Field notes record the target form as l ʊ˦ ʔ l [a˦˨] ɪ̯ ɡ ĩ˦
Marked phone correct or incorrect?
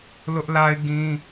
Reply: incorrect